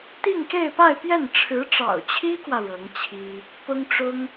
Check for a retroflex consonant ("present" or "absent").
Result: present